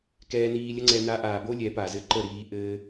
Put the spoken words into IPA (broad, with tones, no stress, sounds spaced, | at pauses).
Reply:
k ɛː˧ n iː˧ lʲ ə˦ ŋ͡ǀ ɛ˧ n a˧ ʔ aː˨ b o˦ lʲ ɛ˨˦ p a˨ z ɘ˦ ǃ ə˦˨ ɾ iː˧ ʔ ɘː˦